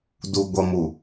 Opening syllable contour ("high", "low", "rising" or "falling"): low